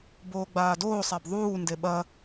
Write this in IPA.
b oː ɡ͡b aː d oː sˤ a b ðˤ uː n d e ɓ ɐ

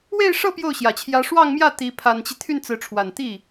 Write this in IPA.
w e˥˧ ɪ̯ ʂ ɤ˥˧ p j o˥˩ ʊ̯ ɕ j ä˨˩ t͡ɕʰ j ä˧˥ ʂ w ɑ˥˧ ŋ m j ä˥˩ t̪ i˧˥ pʰ a˨˩ n t͡ɕ i˦ t̪ʰ y˥˩ n t͡s ɹ̩˧˥ ʈ͡ʂʰ w a˨˩ n t̪ i˥˩

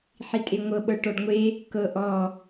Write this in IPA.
ħ i tʼ e ŋʷ ɤ ɓ ɤ ʈ ɔ ɖ ŋʷ e | k ɤ ʔ ɔ

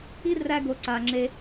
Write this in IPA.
i˦ r æ˧ ɡ o˨ ǀ a˨ ŋ͡ǁ e˧

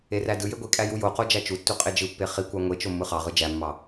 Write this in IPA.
e r æ d ɯ j e ɡʷ i kʼ æ j u j o q o d͡ʒ æ t͡ʃ u tː u qʼ e d͡ʒ ɯ pː e χ i kʷ ɑ ŋʷ e t͡ʃ o mː ɯ χ ɑ ʁ ɯ d͡ʒ æ mː ɑ

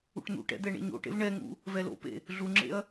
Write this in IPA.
ṵ ʈ n̪ ṵ ʈ ɛ̰ d̪ ɛ ɳ ḛ ɲ o̰ ʈ ḛ v ɳ ɛ ŋ ṵ | v ɛ l o̰ p ḛ | ɮ u ŋ͡ǁ ḛ ɐ̯

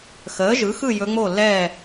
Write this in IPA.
x əː˩˥ ʒ ɯ˩˥ x ɯ˥˨ j ɵ˧˥ ŋ͡m o˥˨ lː ɛː˥˨

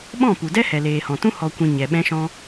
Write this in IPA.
ɓ ɔ̃˦˨ p u˨ d ɛ˦ h ɛ˨ l eː˨ h ɔ̃˨ t ũ˦ h ɔ˨ kʷ ĩ˨ ɲ ɛ˨ ɓ ɛ̃˧ ʃ ɔ̃˧

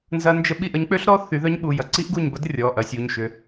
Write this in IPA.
n z ɐ˦˥ n d͡ʒ ə˦˥ ɓ i˦˨ ʔ ə˨˦ ɲ k͡p ø˦˥ ɬ ɾ ɔ˦˥ θ y˨˦ ð œ˦˥ ɲ ɓ u˩˧˩ j ɐ˦˥ ǀ i˦˥ ʔ ɡ u˦˨ ɲ b ɐ˦˥ d rʲ ɔ˩˧˩ ʔ ɐ˨˦ sʲ u˩˧˩ ɲ ʃ ʏ˨˦

